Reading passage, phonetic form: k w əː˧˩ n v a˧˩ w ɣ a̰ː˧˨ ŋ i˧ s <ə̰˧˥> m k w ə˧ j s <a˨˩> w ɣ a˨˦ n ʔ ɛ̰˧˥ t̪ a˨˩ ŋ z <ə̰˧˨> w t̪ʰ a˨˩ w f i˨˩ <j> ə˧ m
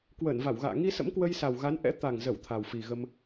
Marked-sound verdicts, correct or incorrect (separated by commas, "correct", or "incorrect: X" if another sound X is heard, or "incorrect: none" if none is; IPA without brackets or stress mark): correct, correct, incorrect: ə˧˩, incorrect: ɣ